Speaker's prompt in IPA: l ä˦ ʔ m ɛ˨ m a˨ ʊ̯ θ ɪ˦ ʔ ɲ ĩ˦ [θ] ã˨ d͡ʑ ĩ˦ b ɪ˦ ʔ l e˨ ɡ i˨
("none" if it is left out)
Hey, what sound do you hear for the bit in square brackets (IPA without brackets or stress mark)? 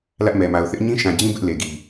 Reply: ʃ